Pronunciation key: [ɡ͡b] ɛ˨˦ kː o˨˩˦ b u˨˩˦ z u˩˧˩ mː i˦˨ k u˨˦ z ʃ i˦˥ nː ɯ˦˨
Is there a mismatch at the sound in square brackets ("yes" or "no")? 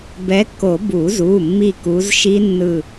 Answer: yes